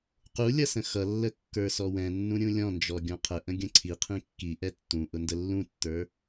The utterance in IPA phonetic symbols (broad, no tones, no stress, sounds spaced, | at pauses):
q u lʲ ʌ s ə̃ x ʌ lː ə kː ə˞ s ɔ w ɛ̃ nː ũ ɾʲ ũ lʲ ɔ̃ n d͡ʒ ɔ ɡʲ ɔ̃ qʰ ə ʔ ə̃ ɡʲ ə̃ ǀʰ i qʰ ĩ kː i ʔ ɛ tː ũ ʔ ʊ n d ə lː ũ tː ə˞